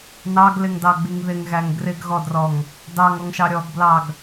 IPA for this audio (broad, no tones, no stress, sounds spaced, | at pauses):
n ɑ ɡ l ɪ ŋ d ɑ ɡ͡b i ŋ ð ɪ ŋ ɣ æ ŋ ɡ r ɪ ɡ ɣ ɔ d r ɔ ŋ | d ɑ ŋ ɔ ŋ ʃ ɑ ɾʲ ɔ ɡ b l ɑ ɡ